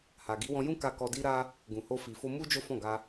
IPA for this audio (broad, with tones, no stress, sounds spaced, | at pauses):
h a˨ ɡ i˨˦ w ɔ̃˧ j ũ˦ k a˧ k ɔ˧ d i˦ ɾ a˦ | ɡ ũ˨ h o˧ f i˨ f o˧ m u˦ d͡ʒ o˦ f ɔ̃˦˨ ɡ a˧